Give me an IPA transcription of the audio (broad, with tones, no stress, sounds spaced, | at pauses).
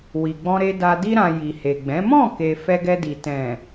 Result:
w i˨ ɡ͡b ɔ̃˧ ɾ e˧ d a˧ d i˧ ɾ ã˨ j i˨ h e˨ ɡ͡b ɛ̃˨˦ m ɔ̃˦˨ k e˨ f ɛ˧ ɡ ɛ˧ d i˨ t ɛ̃˨